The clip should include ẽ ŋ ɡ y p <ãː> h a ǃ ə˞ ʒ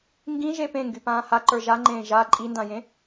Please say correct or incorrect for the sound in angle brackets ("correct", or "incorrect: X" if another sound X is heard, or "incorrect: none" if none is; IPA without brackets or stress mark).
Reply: correct